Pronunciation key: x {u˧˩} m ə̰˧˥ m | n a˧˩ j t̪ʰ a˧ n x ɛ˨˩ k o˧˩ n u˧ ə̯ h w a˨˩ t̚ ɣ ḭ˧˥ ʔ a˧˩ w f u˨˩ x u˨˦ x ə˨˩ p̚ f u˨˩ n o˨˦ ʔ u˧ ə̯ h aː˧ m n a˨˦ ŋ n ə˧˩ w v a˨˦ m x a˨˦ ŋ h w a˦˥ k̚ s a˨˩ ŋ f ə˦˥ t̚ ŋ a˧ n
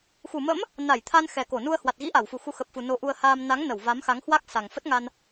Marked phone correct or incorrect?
correct